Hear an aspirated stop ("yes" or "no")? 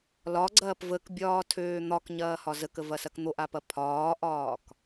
yes